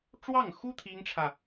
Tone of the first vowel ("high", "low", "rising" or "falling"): falling